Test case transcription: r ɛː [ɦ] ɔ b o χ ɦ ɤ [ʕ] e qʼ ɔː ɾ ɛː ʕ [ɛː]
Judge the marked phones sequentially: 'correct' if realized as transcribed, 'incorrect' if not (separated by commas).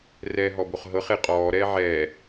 correct, incorrect, correct